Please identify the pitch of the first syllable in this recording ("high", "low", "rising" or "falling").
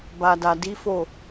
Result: low